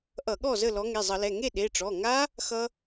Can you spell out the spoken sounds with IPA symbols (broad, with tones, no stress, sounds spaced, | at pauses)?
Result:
ʔ ʌ˧˩˧ ɠ ɔ˥˩ z əː˥˩ l ɔ˨˦ ŋ e˩˧˩ zˤ ʌ˧˩˧ l ɛ˩˧˩ ŋ e˥˩ ɗ e˩˧˩ ʈ͡ʂ ɔ˩˧˩ ŋ a˦˥ | x ʌ˦˥